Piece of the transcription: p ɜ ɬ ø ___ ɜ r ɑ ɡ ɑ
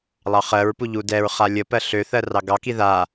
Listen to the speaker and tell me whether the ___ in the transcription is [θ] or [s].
θ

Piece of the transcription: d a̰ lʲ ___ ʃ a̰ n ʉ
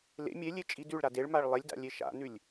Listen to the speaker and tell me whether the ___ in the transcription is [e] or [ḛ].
e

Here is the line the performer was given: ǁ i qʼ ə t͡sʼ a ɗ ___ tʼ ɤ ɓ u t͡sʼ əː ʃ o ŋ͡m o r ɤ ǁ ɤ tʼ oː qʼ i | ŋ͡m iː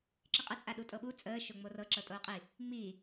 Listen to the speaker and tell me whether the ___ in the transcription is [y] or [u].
u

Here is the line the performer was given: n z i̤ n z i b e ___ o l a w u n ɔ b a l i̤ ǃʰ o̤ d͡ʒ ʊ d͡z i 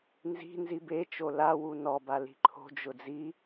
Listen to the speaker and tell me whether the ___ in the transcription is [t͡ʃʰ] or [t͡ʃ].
t͡ʃ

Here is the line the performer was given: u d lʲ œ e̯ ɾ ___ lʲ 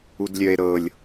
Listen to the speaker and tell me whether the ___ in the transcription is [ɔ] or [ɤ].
ɤ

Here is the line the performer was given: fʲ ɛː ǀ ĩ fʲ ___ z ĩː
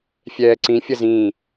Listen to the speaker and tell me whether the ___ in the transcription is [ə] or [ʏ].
ə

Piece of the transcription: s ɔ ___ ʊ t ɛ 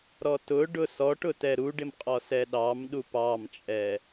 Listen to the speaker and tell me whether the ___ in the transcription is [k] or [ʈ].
ʈ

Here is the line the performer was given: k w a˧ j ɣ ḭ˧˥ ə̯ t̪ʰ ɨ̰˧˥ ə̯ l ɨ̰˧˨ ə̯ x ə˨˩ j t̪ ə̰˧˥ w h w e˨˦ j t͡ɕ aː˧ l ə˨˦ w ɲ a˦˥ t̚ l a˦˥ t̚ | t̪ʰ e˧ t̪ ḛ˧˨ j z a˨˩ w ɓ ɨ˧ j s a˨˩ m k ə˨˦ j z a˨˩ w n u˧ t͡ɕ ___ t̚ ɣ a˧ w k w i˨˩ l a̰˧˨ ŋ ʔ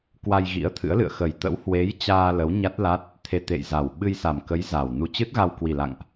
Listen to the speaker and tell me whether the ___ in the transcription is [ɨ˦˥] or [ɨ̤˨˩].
ɨ˦˥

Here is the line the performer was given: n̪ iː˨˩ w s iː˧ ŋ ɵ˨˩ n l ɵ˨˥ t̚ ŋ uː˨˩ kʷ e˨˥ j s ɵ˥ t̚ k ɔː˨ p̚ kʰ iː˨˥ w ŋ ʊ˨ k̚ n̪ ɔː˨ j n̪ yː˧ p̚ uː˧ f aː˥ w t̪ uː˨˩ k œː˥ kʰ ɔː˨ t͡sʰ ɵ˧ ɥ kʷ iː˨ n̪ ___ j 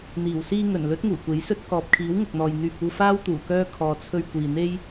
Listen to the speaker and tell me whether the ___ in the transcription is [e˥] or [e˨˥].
e˥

